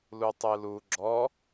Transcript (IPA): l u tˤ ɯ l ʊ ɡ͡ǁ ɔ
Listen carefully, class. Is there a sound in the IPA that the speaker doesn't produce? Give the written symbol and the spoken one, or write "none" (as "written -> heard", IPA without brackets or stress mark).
ʊ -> u